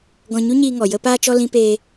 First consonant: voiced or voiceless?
voiced